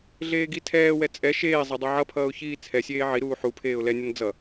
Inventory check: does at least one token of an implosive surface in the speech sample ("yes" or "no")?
no